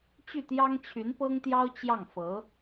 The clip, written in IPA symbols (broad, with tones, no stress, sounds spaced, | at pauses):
t͡ɕ y˥˩ t̪ j ɑ˥ ŋ t͡ɕʰ y˧˥ n p ɤ˥ ŋ t̪ j ɑ˥ ʊ̯ t͡ɕ j ɑ˥˩ ŋ f ɤ˧˥